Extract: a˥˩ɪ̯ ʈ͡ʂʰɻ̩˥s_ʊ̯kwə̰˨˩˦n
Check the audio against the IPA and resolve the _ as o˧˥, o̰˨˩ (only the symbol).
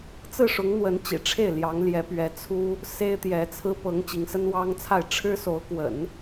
o˧˥